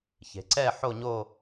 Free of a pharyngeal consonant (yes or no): no